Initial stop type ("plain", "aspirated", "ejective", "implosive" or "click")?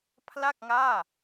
aspirated